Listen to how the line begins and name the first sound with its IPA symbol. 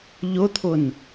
ʎ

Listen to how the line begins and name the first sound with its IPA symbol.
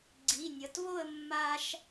ɡ͡ǀ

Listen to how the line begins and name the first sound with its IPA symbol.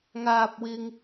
ŋ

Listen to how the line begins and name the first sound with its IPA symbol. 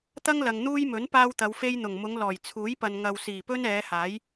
t̪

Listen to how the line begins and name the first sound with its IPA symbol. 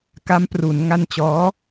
k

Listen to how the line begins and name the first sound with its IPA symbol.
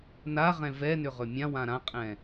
n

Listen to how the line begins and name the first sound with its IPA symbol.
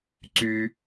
ǀ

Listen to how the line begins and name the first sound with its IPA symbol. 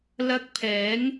l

